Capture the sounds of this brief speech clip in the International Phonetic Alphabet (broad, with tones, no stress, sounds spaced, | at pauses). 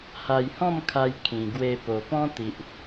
h a˧ j h ɔ̃˥˧ m kʰ a˧ j kʰ ĩ˨˩ ɡ w e˧ p o˨˩ p ɔ̃˦ t̪ i˨ ʔ